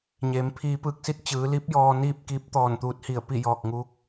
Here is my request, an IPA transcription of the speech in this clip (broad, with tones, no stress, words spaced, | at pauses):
ɲeː˩˧mpʰiː˧pɯː˧˥k̚ si˧t̚t͡ɕɯː˩˧li˧˥p̚ jɔː˧niː˥˨p̚kiː˧˥p̚t̪ɔː˧˩n t̪uː˧t̚hi˧˩ə̯pi˥˨ jɔː˧˩k̚ŋuː˧˥k̚